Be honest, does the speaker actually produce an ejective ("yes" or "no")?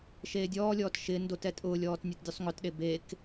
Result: yes